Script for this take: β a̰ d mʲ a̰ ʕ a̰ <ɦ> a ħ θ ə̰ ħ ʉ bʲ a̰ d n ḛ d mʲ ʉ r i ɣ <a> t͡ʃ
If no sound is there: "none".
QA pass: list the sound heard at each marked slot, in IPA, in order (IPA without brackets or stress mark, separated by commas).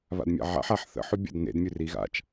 ħ, a̰